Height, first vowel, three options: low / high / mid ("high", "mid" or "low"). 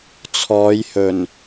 mid